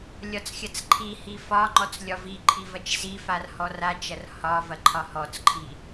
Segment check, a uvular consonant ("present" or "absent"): absent